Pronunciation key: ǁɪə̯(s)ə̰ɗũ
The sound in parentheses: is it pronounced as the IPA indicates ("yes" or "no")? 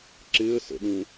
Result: yes